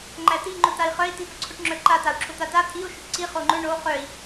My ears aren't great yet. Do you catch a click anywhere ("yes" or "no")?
yes